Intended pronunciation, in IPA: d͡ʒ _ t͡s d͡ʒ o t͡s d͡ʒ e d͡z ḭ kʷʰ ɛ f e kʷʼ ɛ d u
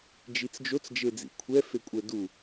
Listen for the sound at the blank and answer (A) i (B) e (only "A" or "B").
A